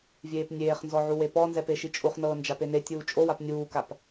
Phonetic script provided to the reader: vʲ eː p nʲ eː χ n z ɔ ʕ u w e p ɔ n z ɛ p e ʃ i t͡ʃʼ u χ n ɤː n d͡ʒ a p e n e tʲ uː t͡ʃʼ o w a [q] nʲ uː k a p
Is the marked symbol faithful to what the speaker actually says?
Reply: no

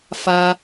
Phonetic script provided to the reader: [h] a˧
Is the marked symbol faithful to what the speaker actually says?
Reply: no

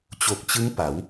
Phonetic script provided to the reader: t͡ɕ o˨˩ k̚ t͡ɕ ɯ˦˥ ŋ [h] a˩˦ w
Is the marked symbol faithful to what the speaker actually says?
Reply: no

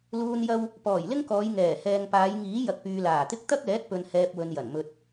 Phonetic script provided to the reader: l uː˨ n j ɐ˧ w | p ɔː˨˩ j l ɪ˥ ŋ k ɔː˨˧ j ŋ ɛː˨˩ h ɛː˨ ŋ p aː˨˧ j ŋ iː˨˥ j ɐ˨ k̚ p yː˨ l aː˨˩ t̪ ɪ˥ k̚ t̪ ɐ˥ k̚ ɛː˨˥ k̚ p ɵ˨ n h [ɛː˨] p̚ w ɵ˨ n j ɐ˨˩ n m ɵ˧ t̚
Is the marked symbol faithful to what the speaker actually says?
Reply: yes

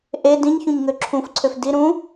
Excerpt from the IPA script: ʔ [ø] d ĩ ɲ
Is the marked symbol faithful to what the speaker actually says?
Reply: no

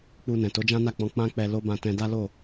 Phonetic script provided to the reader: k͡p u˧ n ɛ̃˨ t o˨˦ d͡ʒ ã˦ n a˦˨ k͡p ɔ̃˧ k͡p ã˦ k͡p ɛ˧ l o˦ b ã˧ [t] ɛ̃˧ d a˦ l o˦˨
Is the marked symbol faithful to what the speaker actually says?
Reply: yes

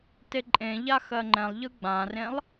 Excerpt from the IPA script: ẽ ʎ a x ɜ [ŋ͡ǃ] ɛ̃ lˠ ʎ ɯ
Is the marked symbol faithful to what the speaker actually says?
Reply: yes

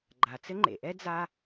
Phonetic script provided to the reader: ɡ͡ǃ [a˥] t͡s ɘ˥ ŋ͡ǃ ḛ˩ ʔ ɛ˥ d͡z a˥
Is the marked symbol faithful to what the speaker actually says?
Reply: no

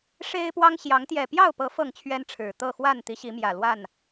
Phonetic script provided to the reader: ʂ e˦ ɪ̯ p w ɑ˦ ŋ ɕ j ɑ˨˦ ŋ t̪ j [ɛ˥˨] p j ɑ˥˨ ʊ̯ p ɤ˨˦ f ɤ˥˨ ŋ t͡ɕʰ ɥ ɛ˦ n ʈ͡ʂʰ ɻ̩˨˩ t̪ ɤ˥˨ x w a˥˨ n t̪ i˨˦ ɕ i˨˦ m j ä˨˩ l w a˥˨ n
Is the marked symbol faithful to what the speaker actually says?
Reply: no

